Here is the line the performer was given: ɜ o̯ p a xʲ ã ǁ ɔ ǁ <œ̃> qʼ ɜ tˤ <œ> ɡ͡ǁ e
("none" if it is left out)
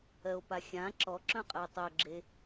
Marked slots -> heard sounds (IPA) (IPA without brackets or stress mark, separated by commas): œ̃, œ